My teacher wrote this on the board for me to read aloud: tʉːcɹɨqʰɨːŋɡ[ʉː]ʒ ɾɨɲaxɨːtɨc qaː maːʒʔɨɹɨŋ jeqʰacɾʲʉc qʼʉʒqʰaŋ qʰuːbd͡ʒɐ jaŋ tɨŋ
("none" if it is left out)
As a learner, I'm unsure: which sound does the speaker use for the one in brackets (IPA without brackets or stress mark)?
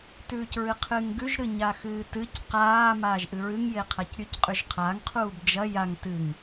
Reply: ʉ